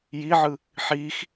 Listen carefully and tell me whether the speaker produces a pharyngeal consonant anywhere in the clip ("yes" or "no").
yes